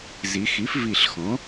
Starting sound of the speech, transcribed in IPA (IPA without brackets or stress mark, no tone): z